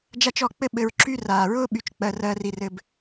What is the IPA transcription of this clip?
d͡ʒa˦t͡ʃɔ˦˨k͡pɘ˦ ɓɘ˧ɹǁy˦ raː˨ɹʊː˦ ɓy˧t͡ʃk͡pɜ˧rɜː˧r i˧rɘ˧b

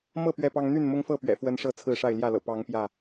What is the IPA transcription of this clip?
mɤ˥˨ pɥɛ˥˨pɑ˦ŋ n̪y˥˨nmʊ˦ŋfɤ˥˨pɥɛ̰˨˩ fwə˦nʂɤ˥˨ t͡sʰɹ̩˥˨ʂa˥˨ɪ̯ ljä˥˨lɤ̰˨˩ pɑ˨˦ŋ pjä˥˨

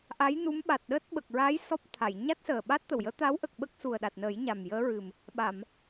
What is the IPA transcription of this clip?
ʔa˧˥j nu˧˥mɓa˨˩t̚ɗəː˦˥t̚ ɓə˨˩k̚ɹa˧˥j sɔ˦˥p̚t̪ʰa˨˩˨j ɲa˦˥t̚səː˨˩ɓa˦˥t̚t̪ə˨˩w jəː˧˥t̪a˧˥wʔə˨˩k̚ ɓə˦˥k̚su˨˩ə̯ ɗa˨˩t̚nəː˨˩˦j ɲa˨˩mjəː˧˥ɹɨ˨˩m | ɓa˨˩˨m

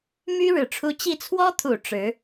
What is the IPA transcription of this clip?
my˥ ɻɻ̩˨˩ʈ͡ʂʰu˧˥ t͡ɕi˥˩ t͡sʰwɔ˥t̪ʰu˨˩ ʈ͡ʂɻ̩˧˥

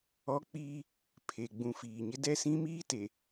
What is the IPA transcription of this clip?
ɔ˦k͡piː˦ | pʰe˨ɡ͡bũ˨ fiː˨ɲɪ˦ dɛ˦sĩ˦miː˦ te˨

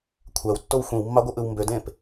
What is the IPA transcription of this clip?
kʷʰæwtːow xʷĩwmːɑɡʷɯʔɯw mbødẽːp

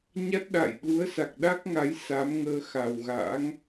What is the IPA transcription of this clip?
ɲa˦˥t̚ɗa̰˧˨jɗu˨˦ə̯sa˨˩k̚ ɗa˦˥k̚ŋa˨˦j sa˨˦mŋəː˧ xa˨˩wɣa̰ː˧˥ŋ

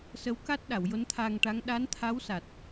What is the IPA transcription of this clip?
sə˧˥wka˦˥t̚ɗa˨˩˨w jo˧˥nt̪ʰaː˧ŋʈa˧˥ŋ ɗa˧˥nt̪ʰa˧˥w sa˨˩t̚

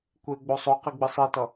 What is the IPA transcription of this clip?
kʷeɡ͡bo sˤoqi ɡ͡bɯsˤitʌ

